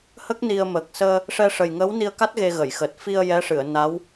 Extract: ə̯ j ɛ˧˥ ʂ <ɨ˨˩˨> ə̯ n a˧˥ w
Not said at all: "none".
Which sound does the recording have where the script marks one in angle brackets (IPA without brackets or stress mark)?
ɨ˨˩˨